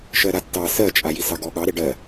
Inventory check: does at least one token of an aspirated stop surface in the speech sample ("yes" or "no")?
no